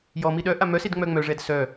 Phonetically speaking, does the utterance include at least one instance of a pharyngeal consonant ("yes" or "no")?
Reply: no